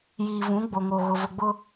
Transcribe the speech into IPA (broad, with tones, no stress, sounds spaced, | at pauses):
j iː˨ v ũ˨˦ ɡ͡b o˨ ŋ o˨ ɣ ʊ˨ v ʊ˨ ɡ͡b ʊ˦